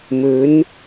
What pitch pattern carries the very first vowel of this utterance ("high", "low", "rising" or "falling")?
rising